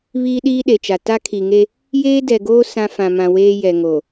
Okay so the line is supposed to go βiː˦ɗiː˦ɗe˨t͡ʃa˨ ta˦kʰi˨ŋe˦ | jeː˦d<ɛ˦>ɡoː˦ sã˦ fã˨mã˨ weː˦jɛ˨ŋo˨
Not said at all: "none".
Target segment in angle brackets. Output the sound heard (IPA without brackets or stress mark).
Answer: ɛ˨